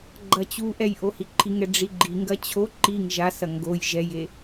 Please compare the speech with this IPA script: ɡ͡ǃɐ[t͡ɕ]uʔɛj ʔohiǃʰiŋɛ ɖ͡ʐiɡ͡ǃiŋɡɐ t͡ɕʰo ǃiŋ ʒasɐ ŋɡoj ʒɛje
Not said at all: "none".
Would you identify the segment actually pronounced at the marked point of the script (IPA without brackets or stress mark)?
t͡ɕ